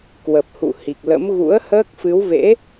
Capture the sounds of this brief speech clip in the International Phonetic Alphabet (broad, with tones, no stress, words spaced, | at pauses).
kwə˨˩p̚hṵ˧˨hi˨˩k̚lə̰˧˥m ɣṵ˧˥ə̯həː˦˥k̚ fɨ˨˦wvḛ˧˥